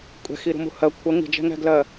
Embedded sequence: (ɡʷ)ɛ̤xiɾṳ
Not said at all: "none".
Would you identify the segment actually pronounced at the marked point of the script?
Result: kʷʼ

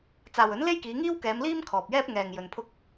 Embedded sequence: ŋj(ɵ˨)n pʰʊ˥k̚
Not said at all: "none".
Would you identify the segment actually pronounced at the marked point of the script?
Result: ɵ˨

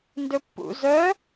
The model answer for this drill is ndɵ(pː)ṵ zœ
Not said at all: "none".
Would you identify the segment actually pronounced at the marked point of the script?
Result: pː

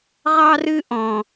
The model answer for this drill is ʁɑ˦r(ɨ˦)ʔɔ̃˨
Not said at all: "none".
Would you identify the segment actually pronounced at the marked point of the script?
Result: ɨ˦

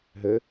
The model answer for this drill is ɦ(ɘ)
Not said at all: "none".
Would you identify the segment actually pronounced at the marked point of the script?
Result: ɘ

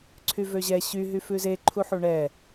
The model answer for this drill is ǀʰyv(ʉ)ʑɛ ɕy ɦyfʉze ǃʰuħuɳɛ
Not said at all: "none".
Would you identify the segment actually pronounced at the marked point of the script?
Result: ø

